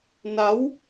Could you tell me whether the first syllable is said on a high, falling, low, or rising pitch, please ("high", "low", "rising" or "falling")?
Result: rising